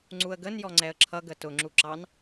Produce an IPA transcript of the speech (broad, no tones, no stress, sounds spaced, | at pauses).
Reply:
ŋ͡ǀ u ə̯ ɡ ə n j ɔ ŋ͡ǀ ɛ ə̯ ǁʰ ʌ ɡ ə t ʊ ŋ͡ǁ u ǁ ɑ n